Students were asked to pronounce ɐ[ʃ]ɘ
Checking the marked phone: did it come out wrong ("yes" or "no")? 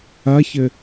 yes